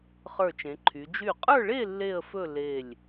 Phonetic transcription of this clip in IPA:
χ ə˞˧˩ t͡ʃ ẽ˩˧ ǃʰ y˩˧ d͡ʒ y˧˩ qʼ ə˞˥˧ ɭ e˥˧ lː e˥˧ ə̯ f ɵ˥˧ l e˧˩ lʲ

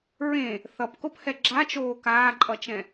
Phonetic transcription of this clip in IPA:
ɹ ẽ | θ ʌ p k o p h ɛ ɡ͡ǁ a t͡ʃ oː k aː ǃʼ ʌ t͡ʃ ɛ̃

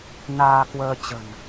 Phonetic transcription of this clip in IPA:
n aː˧ k w əː˧ t͡ɕ ə̤˨˩ n

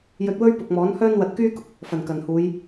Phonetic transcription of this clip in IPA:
j ɵ˧ t̚ w ɵ˥ ɥ p ʊ˨ k̚ m ɔː˨˥ n h œː˥ n w ɐ˧ t̚ k yː˥ k ʊ˨ k̚ | f ɐ˨˩ n k ɐ˨˩ n h uː˨˧ j

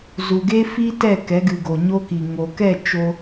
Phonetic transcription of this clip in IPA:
z u˨ ɡ e˧ f i˧ t ɛ˦˨ k ɛ˨˦ ɡ ɨ˨ ɡ o˨ ɲ o˧ k i˨ ŋ o˨ k ɛ˦˨ t͡ʃ o˧

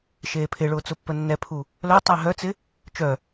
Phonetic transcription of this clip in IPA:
ʃ eː pʰ ɪ ɭ ʊː t͡s ʊ pː ə nː ɛ pʰ u | l œ tˤ ɪː ɦ œ t͡s ɪ | t͡ʃ œ

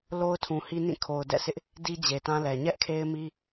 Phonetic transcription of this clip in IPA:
l o˦ ʊ̯ tʰ ũ˨ h i˦ n ĩ˦˨ kʰ o˨ ʊ̯ d ɛ̰˦˨ sʰ ɪ˦ ʔ | d i˦ d͡ʑ e˨ t ã˦ l ɛ˨ ɲ ɛ˦ ʔ kʰ e˦ ɪ̯ m i˦

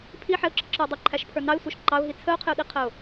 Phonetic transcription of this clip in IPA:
pʰ i ħ ɛ ʊ̯ ǁ ə ǁ ə˞ ʊ̯ dˤ ɪ ǃʰ æ ʃ pʰ ə˞ n ɑ ɪ̯ sʷ ə˞ ʃ ǃ ɑ ʊ̯ ɦ i t͡sʰ ə ʊ̯ qʰ ɪ ʊ̯ ɗ i qʰ ə ʊ̯

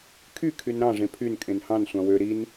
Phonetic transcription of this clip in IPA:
kʰ y kʰ y n ɾ ɑ̃ ʐ ẽ pʰ y n kʼ ẽ n h ɑ̃ n sʷ ɑ̃ w ø ɾ i n

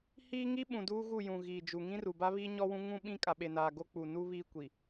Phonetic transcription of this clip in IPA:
h iː˦ ŋ i˦ ɓ ũ˨ d uː˦ ɣ u˦˨ j ũ˨ ɣ iː˨ d͡ʒ u˨ ŋ ĩ˦ r u˨ b a˦ β iː˦ ɲ ɔ˦ w ũ˦ ŋ ũ˦ ɓ ĩ˦ kʼ a˨ ɓ e˨ n aː˨ ɡ o˦ k͡p u˨ n u˦ β iː˦ kʷ i˨

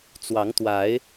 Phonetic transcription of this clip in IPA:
t͡s w ɑ˨˦ ŋ t̪ w a˨˦ ɪ̯

